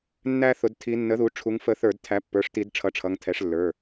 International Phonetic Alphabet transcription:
nː æ˦ θ ʊ˩˧ d tʰ i˩˧ nː ə˩˥ ð u˩˧ ʈ͡ʂʰ u˩˧ ŋ f ə˧˩˧ θ ə˞˧˩˧ d tʰ æ˩˥ pː ə˞˩˧˩ ʂ t i˧˩˧ d ʈ͡ʂʰ ʌ˩˥ ʈ͡ʂʰ ʌ˩˧˩ ŋ tʰ ɛ˩˥ ʂ lː ə˞˩˧˩

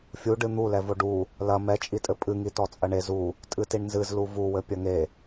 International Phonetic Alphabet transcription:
fʲ u ɖ ɨ n̪ u l ɛ v o ɖ u | l ɐ m ɛ t͡ʃʼ i tʼ ɘ pʼ ɨ ŋ i t ɔ t͡sʼ ɐ ɳ e z u | tʼ ɨ t i ɳ n z ɨ z l u v u w ɘ pʲ ɐ ŋ e

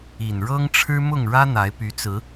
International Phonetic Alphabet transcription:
i˨˩ n ɻ ɤ˦ ŋ ʈ͡ʂʰ ɻ̩˦ m ʊ˥˨ ŋ ɻ ä˦ n̪ a˨˦ ɪ̯ p y˨˦ t͡s ɹ̩˨˦

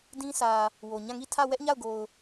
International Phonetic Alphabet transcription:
d ĩ˦ s ä˨ | w o˨ ɲ ã˦˨ ŋ i˦˨ tʰ ä˦˨ w ɛ˦ ʔ ɲ a˦˨ ʊ̯ ɡ o˨ ʊ̯

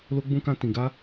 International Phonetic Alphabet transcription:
l o˦ ɡ͡b ũ˦ k ã˦ t ĩ˧ ɡ a˦

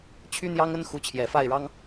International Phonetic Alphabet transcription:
t͡ɕʰ y˥ n̪ j ɑ˥ ŋ ə˥ n x u˧˥ t͡ɕʰ j ɛ˨˩ f a˥˩ ɪ̯ ɻ ɑ˥ ŋ

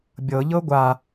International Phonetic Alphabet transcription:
bʲ ɤ ʎ ɤ ɡʷ a

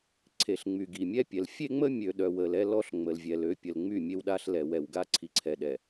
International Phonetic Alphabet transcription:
ǀʰ e˨ ɬ ŋ͡m y˨ ɡ i˨ mʲ ɛ˦ pʲ ɛ˨ l fʲ e˦ ŋ͡m ə˦ mʲ ø˨ ɗ œ˨ w ə˨ l ɛ˦ l ɔ˦ ɬ ŋ͡m ə˨ l vʲ ɛ˨ l ø˦ pʲ ə˨ l ŋ͡m y˦˨ mʲ e˦ w ɗ a˦ ɬ l ɛ˨ w ɛ˨ w ɡ a˦ ǀʰ i˨ ǀʰ ɛ˨ ɗ ɛ˨

